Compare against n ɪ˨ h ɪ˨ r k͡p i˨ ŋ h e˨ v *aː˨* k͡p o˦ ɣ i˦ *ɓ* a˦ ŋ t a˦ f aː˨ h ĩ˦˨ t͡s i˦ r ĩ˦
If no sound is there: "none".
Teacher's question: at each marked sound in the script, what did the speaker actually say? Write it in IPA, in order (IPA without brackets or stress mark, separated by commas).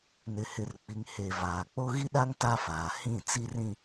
aː˨, ɗ